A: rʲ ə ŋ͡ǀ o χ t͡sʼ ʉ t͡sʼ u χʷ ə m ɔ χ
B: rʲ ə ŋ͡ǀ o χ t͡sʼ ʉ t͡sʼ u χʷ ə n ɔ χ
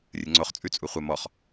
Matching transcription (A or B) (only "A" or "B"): A